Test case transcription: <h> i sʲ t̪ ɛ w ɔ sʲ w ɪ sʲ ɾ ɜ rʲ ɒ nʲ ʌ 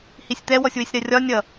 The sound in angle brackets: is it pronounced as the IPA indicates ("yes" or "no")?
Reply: yes